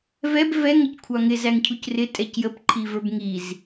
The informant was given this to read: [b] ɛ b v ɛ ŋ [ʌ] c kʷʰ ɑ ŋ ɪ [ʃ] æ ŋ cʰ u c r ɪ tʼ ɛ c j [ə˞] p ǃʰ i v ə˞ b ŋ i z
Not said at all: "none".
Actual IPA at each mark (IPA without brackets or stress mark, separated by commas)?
v, ʌ, z, ə